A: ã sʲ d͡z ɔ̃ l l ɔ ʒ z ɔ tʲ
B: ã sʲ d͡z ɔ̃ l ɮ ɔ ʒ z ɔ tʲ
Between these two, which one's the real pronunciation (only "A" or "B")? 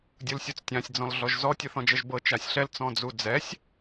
B